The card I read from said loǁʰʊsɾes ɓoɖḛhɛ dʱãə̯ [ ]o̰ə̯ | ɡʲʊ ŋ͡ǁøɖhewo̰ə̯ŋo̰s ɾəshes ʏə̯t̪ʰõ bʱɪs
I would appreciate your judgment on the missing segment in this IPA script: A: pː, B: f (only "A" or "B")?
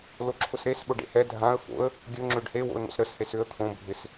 B